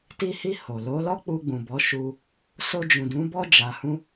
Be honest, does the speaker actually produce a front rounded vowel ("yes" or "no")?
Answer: no